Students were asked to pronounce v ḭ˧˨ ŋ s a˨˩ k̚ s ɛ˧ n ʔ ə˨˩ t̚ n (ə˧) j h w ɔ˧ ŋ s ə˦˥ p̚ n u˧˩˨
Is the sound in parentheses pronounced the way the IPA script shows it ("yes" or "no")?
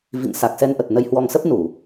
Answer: yes